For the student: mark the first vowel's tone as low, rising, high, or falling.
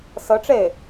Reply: rising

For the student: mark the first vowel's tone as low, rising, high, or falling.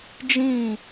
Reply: falling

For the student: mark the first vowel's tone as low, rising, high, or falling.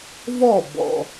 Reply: falling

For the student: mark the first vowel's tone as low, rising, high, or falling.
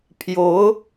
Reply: rising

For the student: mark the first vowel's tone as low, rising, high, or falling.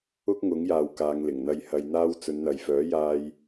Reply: high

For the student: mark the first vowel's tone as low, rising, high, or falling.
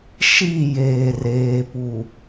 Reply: falling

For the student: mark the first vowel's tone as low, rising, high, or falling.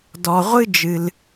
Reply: low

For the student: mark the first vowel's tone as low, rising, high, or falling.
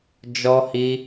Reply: high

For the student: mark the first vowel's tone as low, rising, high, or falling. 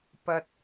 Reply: high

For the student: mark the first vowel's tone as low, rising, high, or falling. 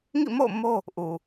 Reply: falling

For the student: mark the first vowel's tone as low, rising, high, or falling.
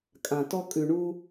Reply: low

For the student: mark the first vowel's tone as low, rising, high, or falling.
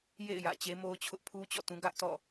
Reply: falling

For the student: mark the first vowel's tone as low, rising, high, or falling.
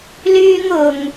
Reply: high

